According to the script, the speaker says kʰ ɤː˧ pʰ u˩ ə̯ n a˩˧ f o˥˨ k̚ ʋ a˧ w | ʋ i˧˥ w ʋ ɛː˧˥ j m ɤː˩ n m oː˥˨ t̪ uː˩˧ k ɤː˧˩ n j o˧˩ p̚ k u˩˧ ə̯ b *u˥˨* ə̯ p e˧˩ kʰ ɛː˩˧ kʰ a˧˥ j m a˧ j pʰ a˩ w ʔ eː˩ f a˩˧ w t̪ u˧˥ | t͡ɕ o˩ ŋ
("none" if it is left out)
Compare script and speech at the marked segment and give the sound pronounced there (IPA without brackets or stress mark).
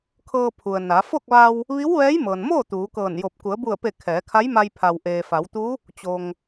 u˧˩